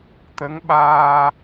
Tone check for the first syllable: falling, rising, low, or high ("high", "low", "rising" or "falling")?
rising